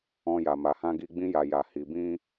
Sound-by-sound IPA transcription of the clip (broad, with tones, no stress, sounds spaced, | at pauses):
ɔ̃˧ j a˨ m a˨ h ã˧ ɡ i˧ ɡ͡b ĩ˧ j a˨ j a˨ h i˨ b ĩ˧